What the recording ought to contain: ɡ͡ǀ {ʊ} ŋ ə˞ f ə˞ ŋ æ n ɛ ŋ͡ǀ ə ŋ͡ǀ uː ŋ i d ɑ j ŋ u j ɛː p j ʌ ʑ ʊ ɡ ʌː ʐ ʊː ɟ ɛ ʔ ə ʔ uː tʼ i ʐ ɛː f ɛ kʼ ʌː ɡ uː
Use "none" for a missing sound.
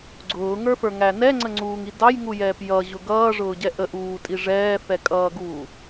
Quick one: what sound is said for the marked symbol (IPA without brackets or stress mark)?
ʊː